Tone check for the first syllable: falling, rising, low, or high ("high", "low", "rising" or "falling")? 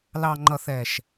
low